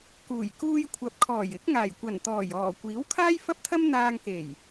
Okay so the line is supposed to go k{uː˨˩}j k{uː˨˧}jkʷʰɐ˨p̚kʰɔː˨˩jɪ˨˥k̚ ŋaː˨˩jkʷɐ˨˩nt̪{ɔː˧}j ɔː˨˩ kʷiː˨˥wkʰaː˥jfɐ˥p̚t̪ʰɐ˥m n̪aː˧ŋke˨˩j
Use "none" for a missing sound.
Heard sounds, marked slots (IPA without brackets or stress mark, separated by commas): uː˨˩, uː˧, ɔː˨˩